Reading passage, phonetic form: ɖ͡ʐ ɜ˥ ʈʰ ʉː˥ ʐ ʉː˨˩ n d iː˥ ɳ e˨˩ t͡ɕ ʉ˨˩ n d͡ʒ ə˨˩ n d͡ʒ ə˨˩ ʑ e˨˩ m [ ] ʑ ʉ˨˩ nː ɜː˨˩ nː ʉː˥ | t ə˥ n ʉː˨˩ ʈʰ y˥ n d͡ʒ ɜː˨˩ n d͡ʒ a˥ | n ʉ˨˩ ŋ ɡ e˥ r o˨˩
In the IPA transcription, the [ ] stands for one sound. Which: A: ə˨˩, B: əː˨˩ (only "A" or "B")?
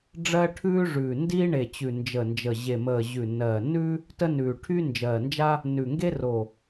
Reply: B